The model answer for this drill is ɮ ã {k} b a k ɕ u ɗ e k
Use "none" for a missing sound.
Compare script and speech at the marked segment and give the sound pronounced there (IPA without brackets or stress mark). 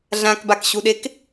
k